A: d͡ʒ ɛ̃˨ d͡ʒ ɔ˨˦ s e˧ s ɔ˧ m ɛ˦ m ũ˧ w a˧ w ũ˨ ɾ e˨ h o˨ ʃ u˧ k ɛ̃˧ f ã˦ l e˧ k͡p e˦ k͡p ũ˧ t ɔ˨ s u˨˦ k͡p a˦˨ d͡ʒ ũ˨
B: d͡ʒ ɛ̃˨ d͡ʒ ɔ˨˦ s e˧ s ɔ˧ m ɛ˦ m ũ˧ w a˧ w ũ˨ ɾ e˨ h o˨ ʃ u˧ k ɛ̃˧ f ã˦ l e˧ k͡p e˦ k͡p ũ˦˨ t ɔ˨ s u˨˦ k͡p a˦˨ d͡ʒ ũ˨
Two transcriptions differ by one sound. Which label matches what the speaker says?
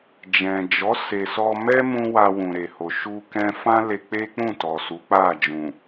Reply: B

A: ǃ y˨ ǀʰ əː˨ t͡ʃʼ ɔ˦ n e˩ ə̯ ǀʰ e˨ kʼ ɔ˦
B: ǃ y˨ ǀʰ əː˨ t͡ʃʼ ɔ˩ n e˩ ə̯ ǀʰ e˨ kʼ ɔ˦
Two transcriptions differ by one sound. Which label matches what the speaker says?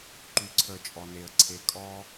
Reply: B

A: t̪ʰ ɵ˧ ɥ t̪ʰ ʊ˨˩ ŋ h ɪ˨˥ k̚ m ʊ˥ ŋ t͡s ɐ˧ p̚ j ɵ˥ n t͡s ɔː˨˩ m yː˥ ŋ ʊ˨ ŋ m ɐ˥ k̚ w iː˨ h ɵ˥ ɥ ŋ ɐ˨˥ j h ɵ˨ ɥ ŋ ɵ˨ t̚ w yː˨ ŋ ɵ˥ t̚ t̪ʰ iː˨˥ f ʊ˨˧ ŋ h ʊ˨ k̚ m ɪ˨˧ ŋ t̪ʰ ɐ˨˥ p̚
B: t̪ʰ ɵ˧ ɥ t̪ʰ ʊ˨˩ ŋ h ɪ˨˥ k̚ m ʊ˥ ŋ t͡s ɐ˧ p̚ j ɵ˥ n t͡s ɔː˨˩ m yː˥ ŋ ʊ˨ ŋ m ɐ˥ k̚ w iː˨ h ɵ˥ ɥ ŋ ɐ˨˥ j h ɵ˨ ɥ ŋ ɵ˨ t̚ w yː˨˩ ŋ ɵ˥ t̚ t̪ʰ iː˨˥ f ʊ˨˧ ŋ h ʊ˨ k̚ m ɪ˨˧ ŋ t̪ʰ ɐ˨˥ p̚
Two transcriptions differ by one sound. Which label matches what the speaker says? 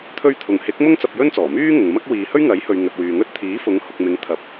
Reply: A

